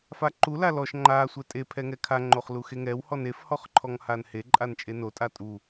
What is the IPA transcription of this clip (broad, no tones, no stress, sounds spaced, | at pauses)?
f a ǃ u l a l ɔ ʃ ŋ͡ǃ a sʷ ɛ tʼ e pʰ ɛ ŋ ɛ kʰ a ŋ͡ǃ o χ l u x e ŋ ɛ w h ɔ n e f h ɔ χ ǃʰ ɔ ŋ h a n h e ǃʼ a n t͡ʃʼ e n o tʼ a tʼ u